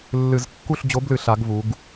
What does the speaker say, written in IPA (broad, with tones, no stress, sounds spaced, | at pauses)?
lː ɨ˧˩˧ z kː u˦˨ ɬ d͡ʑ o˨˥ b l ɨ˧˩˧ ɬ a˩˧ ɡ v u˩˧ ɡ